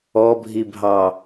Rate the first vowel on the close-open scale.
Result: mid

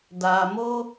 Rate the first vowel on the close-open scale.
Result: open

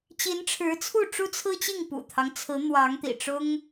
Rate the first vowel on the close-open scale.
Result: close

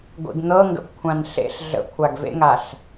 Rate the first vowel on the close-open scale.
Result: close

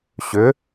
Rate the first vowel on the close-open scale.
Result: close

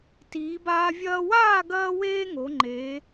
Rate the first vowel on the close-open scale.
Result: close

